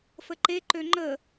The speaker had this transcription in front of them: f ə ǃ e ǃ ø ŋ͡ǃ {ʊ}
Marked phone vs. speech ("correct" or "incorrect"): incorrect